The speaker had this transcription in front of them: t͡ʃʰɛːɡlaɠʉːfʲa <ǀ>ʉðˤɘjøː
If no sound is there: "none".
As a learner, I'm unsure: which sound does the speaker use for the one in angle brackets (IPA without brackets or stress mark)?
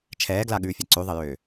ǀ